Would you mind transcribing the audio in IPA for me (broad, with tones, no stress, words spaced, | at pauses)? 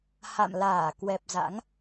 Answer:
ha̰˧˨mlaː˧˩ kwɛ˨˩p̚ za̰˧˥ŋ